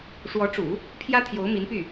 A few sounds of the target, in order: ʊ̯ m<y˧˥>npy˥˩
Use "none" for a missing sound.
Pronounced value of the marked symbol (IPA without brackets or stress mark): i˧˥